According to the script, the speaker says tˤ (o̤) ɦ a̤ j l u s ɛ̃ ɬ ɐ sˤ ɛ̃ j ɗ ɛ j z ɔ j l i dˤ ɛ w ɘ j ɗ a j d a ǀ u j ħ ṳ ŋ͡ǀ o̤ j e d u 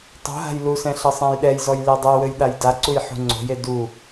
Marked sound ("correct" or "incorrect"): correct